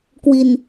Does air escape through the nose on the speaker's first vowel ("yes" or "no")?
no